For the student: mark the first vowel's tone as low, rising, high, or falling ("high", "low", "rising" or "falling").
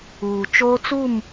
low